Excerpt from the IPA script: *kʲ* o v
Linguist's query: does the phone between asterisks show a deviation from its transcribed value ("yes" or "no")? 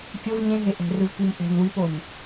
no